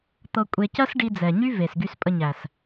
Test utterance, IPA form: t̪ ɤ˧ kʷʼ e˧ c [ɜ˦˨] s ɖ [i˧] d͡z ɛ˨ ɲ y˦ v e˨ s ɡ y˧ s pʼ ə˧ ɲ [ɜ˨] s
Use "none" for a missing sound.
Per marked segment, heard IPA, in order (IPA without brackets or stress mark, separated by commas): ɜ˦, i˧, æ˨